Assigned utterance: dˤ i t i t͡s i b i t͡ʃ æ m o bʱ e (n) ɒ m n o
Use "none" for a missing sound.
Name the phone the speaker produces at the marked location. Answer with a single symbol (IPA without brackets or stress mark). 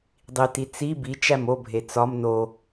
t͡s